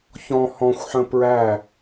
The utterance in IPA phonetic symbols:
ç ɔ̃ h ɔ̃ xʷ ħ ə̃ p ɹ æ

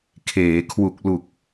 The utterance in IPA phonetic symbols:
kʰ eː˩˦ kʰ w u˨˩ k̚ l u˨˩ k̚

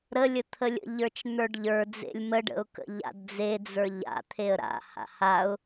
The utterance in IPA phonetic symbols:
ɾ ə lʲ ə t̪ʰ ə lʲ ə̰ ʎ ə˞ t͡ʃ n̪ ə˞ ɖ ʎ ə˞ d͡z ḛ lʲ m ə ɖ ə̰ ʊ̯ k ə̰ ʎ a̰ d d͡z e d͡z ə˞ ʎ a̰ t̪ʰ e ə̯ ɾ a̰ h a̰ h a ʊ̯

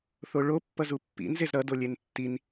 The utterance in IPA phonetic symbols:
θ o ɭ o pː ʌ z u pː ḭ n z e z ɾ ʌ d o lʲ e n tː i n

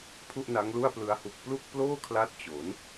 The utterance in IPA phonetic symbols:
pʰ u˥˩ ʔ n a˦˥ ŋ l u˥˩ a̯ p l ɯ˦˥ a̯ h u˨˩ k̚ p l u˥˩ k̚ p l oː˥˩ kʰ l a˦˥ t̚ t͡ɕ o˩˦ n

